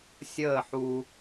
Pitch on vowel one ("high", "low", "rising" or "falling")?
falling